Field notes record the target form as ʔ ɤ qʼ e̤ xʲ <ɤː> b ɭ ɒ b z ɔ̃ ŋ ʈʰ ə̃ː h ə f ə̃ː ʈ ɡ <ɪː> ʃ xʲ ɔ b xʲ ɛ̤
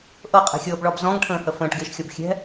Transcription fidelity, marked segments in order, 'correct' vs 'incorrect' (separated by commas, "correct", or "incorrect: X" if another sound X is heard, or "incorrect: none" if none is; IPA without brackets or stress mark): correct, correct